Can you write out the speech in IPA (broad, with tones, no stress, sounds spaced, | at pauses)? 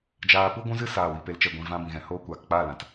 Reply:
d͡ʒ aː˧ p u˦ ɡʷ ũ˦ z ɨ˦ s aː˦˨ w i˧ p e˧ l t͡ʃ ɛ˧ ɡʷ ĩ˨ v ã˧ b ĩ˨ ɣ ɛ̃˨ h oː˧ kʷ aː˨ k k͡p aː˦˨ l ã˨ t